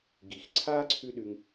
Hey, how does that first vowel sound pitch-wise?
low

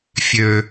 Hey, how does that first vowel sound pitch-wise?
low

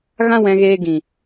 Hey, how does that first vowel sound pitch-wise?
high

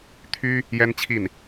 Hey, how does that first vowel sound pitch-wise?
high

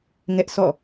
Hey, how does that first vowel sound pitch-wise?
high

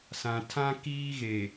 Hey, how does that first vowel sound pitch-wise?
low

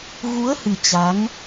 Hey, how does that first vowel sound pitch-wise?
rising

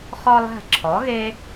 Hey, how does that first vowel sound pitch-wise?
high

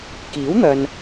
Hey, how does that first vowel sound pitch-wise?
rising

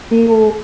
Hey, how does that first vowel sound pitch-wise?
low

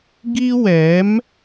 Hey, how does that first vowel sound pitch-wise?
high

